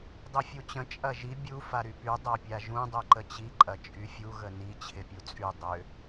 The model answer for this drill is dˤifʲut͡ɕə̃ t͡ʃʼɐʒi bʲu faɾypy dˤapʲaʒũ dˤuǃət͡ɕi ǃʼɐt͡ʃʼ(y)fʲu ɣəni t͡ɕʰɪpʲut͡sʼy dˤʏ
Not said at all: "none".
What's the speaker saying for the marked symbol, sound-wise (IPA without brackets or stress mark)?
y